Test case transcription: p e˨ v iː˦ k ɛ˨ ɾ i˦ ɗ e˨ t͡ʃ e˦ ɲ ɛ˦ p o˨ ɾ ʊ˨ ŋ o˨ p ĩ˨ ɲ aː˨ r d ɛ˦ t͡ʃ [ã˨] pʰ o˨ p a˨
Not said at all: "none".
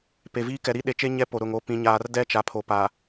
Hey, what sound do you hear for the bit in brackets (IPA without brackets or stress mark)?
a˨